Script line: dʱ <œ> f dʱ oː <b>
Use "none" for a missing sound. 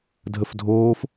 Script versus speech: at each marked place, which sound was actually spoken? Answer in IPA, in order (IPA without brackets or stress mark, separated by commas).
ə, f